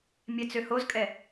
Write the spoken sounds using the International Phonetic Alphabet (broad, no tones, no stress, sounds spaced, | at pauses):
mʲ ɛ t͡s ø h o z kʼ ɛ